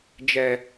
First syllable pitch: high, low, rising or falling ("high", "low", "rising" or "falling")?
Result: low